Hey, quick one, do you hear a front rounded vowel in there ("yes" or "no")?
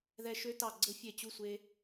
yes